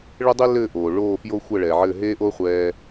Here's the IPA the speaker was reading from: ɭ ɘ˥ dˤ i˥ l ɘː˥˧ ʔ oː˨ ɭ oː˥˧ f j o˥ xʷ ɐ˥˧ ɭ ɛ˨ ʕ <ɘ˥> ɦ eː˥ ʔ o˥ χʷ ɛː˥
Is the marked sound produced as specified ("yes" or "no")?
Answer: no